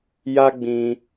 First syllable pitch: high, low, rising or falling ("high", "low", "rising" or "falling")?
high